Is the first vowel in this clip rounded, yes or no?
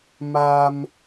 no